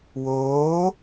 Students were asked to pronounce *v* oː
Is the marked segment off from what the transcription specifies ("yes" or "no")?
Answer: yes